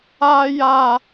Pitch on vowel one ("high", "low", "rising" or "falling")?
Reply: high